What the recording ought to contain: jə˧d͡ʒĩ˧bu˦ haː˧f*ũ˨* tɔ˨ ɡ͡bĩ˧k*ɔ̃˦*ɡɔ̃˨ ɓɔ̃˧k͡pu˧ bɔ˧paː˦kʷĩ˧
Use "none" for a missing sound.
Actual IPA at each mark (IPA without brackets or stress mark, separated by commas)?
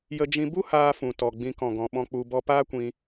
ũ˨, ɔ̃˨